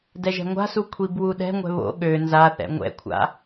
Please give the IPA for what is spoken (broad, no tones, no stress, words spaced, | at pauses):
dɛʒɛ̤ŋʷa̤su kʷʰibwuɗɛ̤ŋʷɛ̤ βo̰ ɠø nzaθɛ̰ ŋʷɛ̰kʷʰa̰